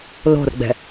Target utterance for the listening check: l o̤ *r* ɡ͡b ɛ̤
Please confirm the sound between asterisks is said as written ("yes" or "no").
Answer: yes